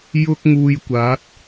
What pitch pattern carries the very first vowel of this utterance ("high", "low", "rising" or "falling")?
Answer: high